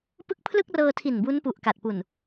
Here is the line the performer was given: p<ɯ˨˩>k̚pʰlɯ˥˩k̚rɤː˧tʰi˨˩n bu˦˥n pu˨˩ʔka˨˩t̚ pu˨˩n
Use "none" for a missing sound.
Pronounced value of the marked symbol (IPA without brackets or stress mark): ɯ˦˥